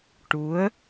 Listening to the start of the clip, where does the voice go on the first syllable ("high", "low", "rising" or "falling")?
rising